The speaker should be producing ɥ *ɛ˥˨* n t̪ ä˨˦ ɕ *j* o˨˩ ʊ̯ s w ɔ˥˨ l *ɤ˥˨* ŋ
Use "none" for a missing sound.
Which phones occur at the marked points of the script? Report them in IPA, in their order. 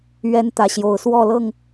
ɛ˦, j, ɤ˥˨

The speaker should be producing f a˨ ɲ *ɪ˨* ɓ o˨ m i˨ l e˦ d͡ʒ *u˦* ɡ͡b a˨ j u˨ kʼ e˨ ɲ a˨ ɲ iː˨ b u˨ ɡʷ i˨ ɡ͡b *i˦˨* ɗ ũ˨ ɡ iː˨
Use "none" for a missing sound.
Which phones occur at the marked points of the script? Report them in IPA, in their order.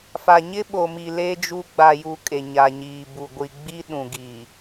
ɪ˦, u˦, i˦

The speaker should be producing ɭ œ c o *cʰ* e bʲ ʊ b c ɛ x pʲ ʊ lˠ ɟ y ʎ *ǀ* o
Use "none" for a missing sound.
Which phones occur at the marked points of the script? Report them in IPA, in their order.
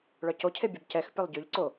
cʰ, ǀ

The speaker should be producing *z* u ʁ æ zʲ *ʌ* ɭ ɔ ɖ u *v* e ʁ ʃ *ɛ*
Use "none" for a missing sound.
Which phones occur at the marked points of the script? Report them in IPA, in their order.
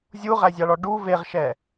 zʲ, ɑ, v, ɛ

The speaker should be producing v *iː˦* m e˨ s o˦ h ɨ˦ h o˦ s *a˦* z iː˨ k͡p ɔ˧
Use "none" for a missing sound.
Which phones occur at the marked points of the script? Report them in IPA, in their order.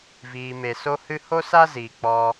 iː˨, a˦

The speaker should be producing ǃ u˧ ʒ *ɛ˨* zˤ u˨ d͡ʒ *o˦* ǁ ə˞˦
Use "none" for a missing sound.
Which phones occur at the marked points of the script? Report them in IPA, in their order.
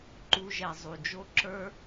ɛ˨, o˦

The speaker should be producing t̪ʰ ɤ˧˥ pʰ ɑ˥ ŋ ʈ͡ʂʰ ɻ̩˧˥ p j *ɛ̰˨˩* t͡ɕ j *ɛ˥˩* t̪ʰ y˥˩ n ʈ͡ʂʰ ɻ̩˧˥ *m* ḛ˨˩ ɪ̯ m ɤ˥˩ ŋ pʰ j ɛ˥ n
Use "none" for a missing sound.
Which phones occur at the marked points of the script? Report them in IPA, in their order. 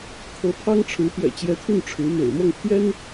ɛ̰˨˩, ɛ˧˥, m

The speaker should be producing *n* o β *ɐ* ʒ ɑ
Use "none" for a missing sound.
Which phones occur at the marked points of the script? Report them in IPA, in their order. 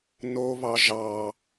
n, ɑ

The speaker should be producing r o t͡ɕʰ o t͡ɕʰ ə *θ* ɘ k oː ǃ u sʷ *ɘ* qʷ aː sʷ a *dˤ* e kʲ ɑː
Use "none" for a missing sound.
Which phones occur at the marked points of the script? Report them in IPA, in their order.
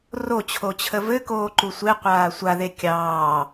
v, e, ð

